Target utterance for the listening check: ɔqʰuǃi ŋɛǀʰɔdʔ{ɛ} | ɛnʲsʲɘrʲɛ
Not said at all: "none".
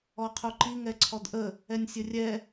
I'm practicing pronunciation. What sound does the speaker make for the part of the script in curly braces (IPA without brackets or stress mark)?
ə